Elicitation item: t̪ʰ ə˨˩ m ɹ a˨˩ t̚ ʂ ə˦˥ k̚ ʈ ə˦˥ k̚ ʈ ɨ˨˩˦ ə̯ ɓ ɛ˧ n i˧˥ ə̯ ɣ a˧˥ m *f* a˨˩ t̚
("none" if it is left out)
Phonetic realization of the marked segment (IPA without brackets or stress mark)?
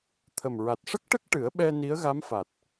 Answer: f